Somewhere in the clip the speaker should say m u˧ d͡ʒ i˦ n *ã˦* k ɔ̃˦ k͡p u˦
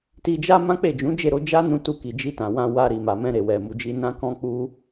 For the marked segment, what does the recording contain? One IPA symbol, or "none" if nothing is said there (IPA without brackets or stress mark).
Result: ã˦